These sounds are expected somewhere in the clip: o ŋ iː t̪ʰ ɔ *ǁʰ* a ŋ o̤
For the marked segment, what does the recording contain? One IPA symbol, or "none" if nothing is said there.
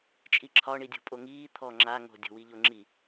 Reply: ŋ͡ǁ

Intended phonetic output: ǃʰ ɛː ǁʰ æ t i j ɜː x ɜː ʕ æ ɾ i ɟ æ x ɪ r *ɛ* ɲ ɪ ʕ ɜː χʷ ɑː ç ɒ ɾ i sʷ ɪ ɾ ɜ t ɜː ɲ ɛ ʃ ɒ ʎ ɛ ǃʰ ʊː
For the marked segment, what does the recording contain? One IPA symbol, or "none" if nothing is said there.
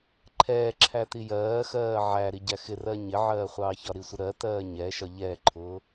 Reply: ɜ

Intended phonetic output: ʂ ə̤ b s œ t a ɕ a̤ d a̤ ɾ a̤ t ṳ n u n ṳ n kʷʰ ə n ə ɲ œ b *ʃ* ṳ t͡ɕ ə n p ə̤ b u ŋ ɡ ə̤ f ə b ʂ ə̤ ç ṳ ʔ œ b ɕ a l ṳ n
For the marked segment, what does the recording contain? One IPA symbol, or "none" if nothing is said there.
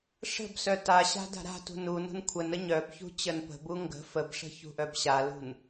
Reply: ç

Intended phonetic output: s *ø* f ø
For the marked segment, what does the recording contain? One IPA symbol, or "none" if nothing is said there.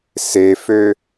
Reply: e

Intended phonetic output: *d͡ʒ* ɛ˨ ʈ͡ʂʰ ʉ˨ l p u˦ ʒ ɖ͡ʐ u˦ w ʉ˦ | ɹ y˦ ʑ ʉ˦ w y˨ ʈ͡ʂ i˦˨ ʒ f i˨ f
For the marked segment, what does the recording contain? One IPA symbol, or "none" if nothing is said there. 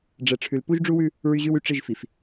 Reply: ɖ͡ʐ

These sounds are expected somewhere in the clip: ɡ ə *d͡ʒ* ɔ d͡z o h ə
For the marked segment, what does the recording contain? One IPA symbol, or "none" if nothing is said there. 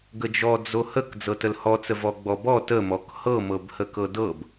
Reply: d͡ʒ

